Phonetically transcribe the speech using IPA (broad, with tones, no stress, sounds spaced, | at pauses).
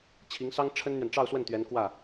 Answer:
t͡ɕʰ i˧˥ ŋ s ɑ˥ ŋ ʈ͡ʂʰ ə˥ n n̪ ɥ ɛ˨ n ʈ͡ʂ ɑ˥˧ ʊ̯ s w ə˥˩ n t̪ ɥ ɛ˧˥ n k w ä˥˩